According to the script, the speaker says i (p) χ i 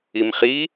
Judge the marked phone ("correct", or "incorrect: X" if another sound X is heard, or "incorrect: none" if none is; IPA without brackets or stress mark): incorrect: m